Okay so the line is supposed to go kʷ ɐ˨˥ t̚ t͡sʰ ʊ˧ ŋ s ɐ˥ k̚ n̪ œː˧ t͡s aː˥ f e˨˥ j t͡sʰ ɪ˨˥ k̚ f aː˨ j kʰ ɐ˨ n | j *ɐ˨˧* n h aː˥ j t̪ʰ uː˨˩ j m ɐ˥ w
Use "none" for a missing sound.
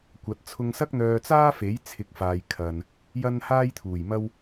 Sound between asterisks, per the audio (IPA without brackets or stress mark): ɐ˥